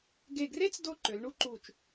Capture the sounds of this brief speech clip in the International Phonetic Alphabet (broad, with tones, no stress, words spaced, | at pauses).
ɡe˧˩ɡre˥t͡s do˥˧ǃø˩˧lɳu˥ǃu˧˩t͡ʃ